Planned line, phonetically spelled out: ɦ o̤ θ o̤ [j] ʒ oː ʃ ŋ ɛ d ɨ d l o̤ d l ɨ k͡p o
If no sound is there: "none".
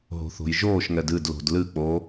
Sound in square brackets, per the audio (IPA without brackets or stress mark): j